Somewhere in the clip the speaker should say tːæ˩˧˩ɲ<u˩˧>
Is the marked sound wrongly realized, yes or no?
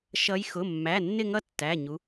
no